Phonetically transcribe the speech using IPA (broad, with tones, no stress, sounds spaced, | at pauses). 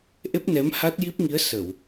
ʔ e˦˥ p̚ n ɛ˧˥ m h a˦˥ t̚ j i˦˥ p̚ ŋ i˧˥ ə̯ s ə˨˩˨ w